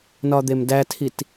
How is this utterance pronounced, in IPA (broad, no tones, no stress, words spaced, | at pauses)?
nɒd̪emdætʰit